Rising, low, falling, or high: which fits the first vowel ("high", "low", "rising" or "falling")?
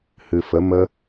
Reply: low